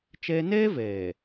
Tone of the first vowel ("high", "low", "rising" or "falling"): high